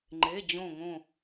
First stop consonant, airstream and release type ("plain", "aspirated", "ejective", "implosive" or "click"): click